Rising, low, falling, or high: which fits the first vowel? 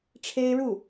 high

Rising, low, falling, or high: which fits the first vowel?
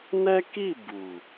high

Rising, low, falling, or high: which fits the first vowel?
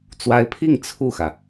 rising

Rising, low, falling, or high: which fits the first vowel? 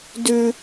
high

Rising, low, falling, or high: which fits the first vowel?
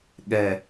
low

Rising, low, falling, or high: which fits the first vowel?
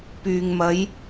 low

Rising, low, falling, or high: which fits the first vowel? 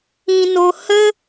low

